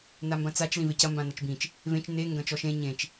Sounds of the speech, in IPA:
n a m b ɐ̃ t͡s a t͡ʃ l ĩ v e c ɐ m b ã n ɐ t͡ʃ b ĩ t͡ʃ | v ẽ t͡ʃ n e ŋ ɡ ɐ̃ t͡ʃ ɔ ʃ ẽ ɲ ẽ t͡ʃ

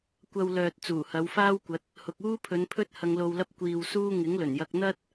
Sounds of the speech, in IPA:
kʷ ɐ˧ w l œː˨ t̚ t͡s uː˨˩ h ɐ˨˧ w f aː˥ w kʷ ɐ˨˥ t̚ | h ʊ˨ k̚ uː˥ pʰ ɵ˨˧ n pʰ ɵ˥ t̚ h ɐ˧ ŋ l o˧ w l ɐ˥ p̚ kʷ iː˧ w s uː˥ ŋ ɪ˨˥ ŋ l ɵ˨˩ n j ɐ˧ k̚ n̪ ɐ˥ t̚

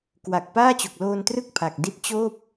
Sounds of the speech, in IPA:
k w a˨˩ k̚ p aː˥˩ t͡ɕ o˨˩ k̚ l oː˧ n t r ɯ˥˩ k̚ pʰ a˨˩ k̚ d i˥˩ t̚ t͡ɕ oː˥˩ p̚

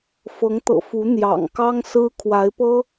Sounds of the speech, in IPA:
f ɤ˧˥ ŋ t̪ ɤ̰˨˩ f u˧˥ n̪ j ɑ̰˨˩ ŋ k ɑ˥ ŋ s ɹ̩˥ kʰ w a˧˥ ɪ̯ p ɤ˥

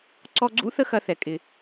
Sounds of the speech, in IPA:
ǀ ɔ˧ ɡ͡ǀ ṵ˥ θ ə˥ x ɐ˧ θ ɛ˩ kʼ ɪ˩

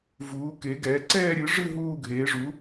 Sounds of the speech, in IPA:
v uː˨˥ k e˨˥ ɡ ɛː˨˥ ǀ ɛː˥˧ ɾʲ ɨ˨˥ ʐ ɨ˥˧ ɦ uː˥˧ ɡʱ eː˨˥ ʐ u˨˥

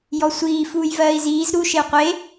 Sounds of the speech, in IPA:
j ɔ sʷ iː f uː j v ɜː i̯ z iː z ɾ u ʃ e u̯ qʷ e

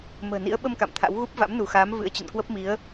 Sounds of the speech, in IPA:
m ə̤ː˨˩ n ḭ˧˥ ə̯ ɓ ə˧ m k a̰˧˨ m t̪ʰ a̰˧˥ w ɣ u˦˥ p̚ v a̰˧˥ m n u˧˩ x aː˨˦ m v ɨ̰˧˥ ə̯ t͡ɕ ə̰˧˨ n k w ə˦˥ p̚ m i˨˦ ə̯

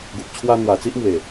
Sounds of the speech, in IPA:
ɡ u˨ p̚ t͡ɕʰ w a˧ n̪ w a˨˩ t͡s i˦ ʔ m w e˨˩

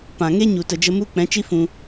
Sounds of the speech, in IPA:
p ã˨ ŋ e˦ ɲ u˨ t ə˨ d͡ʒ ə˧ m u˦ k͡p ɛ̃˨˦ t͡ʃ i˦ f ũ˧

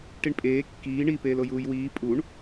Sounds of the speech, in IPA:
ʈ i ɳ pʼ eː kː iː ɳ i p eː l o j uː j w iː pʼ u ɳ

